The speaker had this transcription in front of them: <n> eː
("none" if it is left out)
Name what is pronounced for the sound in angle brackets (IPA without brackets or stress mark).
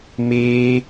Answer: m